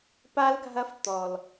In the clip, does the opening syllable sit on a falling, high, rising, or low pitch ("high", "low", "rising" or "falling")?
high